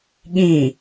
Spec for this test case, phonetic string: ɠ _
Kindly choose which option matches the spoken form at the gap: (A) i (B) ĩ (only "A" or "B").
B